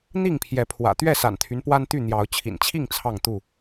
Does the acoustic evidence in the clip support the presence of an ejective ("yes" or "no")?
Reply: no